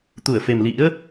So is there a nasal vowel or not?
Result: no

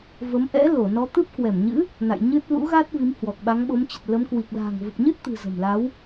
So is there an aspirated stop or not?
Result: no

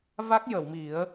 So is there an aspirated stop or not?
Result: no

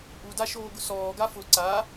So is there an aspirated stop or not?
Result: no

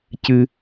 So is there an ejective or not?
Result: no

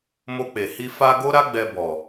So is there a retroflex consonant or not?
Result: no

